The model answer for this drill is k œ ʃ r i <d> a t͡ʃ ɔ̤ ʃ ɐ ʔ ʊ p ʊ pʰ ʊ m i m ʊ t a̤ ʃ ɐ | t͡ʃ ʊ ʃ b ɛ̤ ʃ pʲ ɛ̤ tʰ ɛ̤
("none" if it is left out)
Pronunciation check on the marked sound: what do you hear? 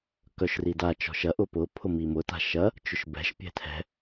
d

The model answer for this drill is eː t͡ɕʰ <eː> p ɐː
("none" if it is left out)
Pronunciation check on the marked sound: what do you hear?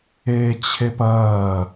e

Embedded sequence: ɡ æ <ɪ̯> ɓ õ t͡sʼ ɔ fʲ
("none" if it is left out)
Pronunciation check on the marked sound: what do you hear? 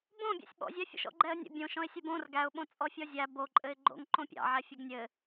ʊ̯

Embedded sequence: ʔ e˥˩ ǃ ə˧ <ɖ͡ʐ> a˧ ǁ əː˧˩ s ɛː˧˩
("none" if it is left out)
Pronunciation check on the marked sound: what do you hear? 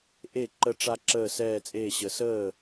ʈ͡ʂ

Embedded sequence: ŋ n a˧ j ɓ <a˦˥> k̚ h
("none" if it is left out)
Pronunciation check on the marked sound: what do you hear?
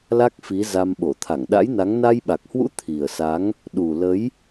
a˨˩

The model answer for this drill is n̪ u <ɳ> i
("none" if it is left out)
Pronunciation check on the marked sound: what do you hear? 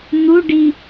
ɖ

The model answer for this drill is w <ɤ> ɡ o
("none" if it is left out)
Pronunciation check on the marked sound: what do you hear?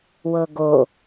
ɤ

